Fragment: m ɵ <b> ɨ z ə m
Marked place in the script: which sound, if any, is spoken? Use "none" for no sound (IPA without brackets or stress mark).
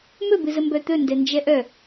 b